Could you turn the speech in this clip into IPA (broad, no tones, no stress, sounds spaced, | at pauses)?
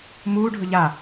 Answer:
m uː ɖʱ ɵ ʎ a